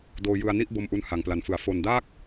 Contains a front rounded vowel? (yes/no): no